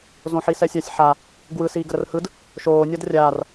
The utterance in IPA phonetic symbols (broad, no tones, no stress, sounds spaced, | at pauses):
z õ ħ i s ɛ sʲ a sʲ ħ a | ɡ w ɯ s iː ɡ ə ɾ ə r h ɯ d | ʃ oː nʲ ɒ d rʲ aː r